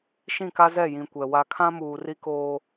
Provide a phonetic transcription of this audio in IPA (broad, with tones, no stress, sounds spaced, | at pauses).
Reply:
ʃ ĩ˦˨ k a˦ z ɛ˦˨ j ĩ˨ kʷ ɛ˨ w a˦ kʰ ã˦ m uː˨ r i˦ k oː˦